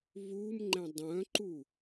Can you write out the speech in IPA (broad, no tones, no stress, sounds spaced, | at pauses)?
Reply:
β u m ŋ͡ǃ ɛ̃ dˤ œ̃ ǃ u